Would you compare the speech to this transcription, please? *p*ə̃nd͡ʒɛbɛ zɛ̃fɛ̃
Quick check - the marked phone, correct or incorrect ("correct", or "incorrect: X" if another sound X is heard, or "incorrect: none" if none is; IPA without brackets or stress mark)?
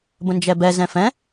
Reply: incorrect: b